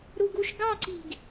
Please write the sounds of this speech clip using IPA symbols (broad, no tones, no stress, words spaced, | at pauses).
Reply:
ɾuɡuʃ ɡɑǀi̤ɡ